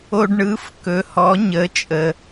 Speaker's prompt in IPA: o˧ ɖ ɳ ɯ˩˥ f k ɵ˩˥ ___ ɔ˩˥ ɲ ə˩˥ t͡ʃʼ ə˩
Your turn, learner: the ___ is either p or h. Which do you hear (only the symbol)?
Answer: h